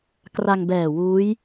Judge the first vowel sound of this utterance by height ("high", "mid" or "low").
low